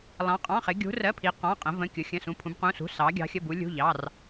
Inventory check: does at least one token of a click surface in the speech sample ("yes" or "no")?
no